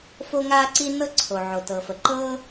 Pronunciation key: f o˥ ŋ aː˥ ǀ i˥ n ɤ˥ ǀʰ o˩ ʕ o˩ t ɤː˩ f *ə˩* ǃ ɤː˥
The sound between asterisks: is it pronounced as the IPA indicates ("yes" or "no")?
yes